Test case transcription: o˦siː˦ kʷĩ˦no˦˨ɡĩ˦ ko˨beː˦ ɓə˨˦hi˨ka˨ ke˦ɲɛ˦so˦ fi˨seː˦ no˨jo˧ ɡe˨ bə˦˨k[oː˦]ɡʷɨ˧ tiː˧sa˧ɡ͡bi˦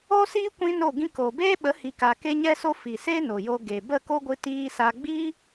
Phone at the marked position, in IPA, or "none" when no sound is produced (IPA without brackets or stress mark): o˦